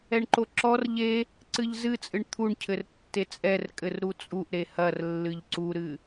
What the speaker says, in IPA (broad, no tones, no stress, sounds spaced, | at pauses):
ɛ ɳ ǃ o ǁ ɔ r ʎ e | ǀ ɨ ʎ z ɨ t͡sʼ ɨ ɳ t̪ʰ u ɳ cʰ ɘ r tː e t͡sʼ ɛ r kʼ ɘ r ɾ u t͡sʼ u ʔ ɾ e h ɐ r lː ɨ ʎ ǀ u ɾ ɨ